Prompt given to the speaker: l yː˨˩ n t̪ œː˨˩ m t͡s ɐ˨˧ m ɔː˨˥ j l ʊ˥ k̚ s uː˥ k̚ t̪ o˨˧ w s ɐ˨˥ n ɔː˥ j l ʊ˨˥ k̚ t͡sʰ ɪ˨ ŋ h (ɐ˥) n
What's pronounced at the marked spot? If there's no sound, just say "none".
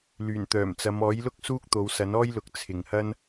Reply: ɐ˥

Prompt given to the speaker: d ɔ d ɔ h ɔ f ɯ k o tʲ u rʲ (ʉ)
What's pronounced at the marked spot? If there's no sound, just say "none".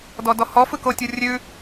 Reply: ʉ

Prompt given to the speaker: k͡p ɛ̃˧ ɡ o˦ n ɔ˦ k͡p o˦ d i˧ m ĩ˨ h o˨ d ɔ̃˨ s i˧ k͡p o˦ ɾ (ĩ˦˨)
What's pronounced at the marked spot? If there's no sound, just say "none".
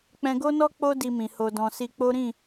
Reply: ĩ˦˨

